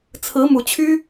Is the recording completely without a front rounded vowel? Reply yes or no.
no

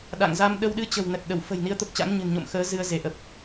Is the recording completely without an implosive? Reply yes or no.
no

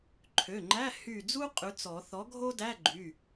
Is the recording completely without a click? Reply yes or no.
no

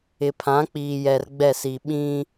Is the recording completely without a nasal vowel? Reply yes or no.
no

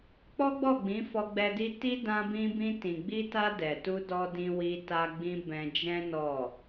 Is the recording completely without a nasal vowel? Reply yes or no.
no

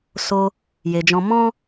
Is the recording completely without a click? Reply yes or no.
yes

